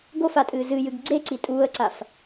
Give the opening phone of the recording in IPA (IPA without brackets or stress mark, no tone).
ɡ